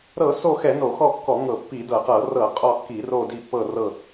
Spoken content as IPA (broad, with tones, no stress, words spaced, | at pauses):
ɾɤ˧˩˧ so˦˨xɛ˧˩˧ no˧˩˧xɔ˦˨kːɔ˧˩˧ŋɤ˧˩˧ pːi˧˩˧dɤ˧˩˧qɤ˧˩˧ rɤ˧˩˧ qʼɔ˦˨kːi˧˩˧ro˦˨di˦˨ pːɤ˦˨rɤ˦˨